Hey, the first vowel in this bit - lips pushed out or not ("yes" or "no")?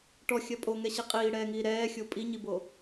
yes